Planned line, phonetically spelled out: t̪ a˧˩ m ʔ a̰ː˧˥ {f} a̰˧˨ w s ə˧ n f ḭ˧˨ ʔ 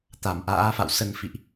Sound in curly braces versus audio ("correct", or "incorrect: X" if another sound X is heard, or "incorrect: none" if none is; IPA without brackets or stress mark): correct